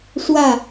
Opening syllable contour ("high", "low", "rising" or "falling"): falling